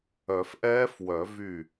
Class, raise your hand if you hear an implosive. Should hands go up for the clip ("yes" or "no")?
no